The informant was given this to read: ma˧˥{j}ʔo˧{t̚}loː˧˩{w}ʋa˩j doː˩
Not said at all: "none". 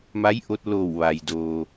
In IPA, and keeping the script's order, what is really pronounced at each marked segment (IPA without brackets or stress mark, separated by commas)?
j, t̚, w